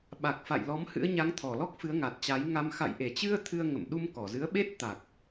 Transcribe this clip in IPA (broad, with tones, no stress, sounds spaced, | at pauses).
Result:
ɓ a˨˩ k̚ f a̰˧˨ j l ɔ˨˦ m h ɨ̰˧˥ ə̯ ɲ a˨˦ ŋ t̪ʰ ɔ˧˩ l ɔ˦˥ k̚ f ɨ˨˦ ə̯ ŋ a˨˩ t̚ t͡ɕ a˨˦ j ŋ a˧ m x a̰˧˨ j ʔ e˧˩ t͡ɕ ɨ˧ ə̯ t̪ʰ ɨ˧ ə̯ ŋ ə̰˧˨ m ɗ u˧ m k ɔ˧˩ z ɨ˨˦ ə̯ ɓ e˦˥ t̚ t̪ a˨˩ k̚